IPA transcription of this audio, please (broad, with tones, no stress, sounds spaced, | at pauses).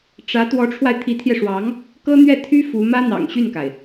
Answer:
ʈ͡ʂ ä˧˥ t̪ w ɔ˧˥ ʈ͡ʂʰ w a˧ ɪ̯ t̪ʰ i˧˥ t̪ʰ j ɛ˧ ʂ w ɑ˧˥ ŋ | k ɤ˥ n̪ ɥ ɛ˥˩ t̪ʰ y˥ f u˧˥ m ä˥ n̪ ɑ̰˨˩ ŋ ɕ y˥˩ n k a˩ ɪ̯